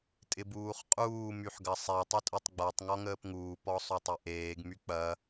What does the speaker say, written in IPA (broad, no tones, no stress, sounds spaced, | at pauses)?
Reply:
tʼ ɪ b uː χ qʼ uː m y ħ ɡ ɐ sˤ ɛ tˤ ɐ tʼ ø tˤ ɡ͡b a tˤ ŋ ɔ ŋ əː p ŋ uː p ɔ sˤ o tˤ ø ʔ eː ɡ m y k͡p ɐ